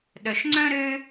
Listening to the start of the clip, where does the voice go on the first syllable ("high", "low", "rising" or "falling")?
low